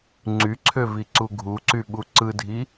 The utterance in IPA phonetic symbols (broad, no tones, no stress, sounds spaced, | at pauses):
ŋ͡ǀ y ǀʰ ø v i ǀ u ɡʱ u ǀ y ɓ u ǀ ɯ dʱ i